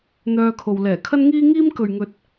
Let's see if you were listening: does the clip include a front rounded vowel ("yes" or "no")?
yes